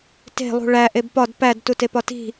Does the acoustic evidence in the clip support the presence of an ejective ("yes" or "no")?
no